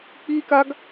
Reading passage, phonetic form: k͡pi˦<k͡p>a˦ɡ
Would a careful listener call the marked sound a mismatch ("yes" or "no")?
yes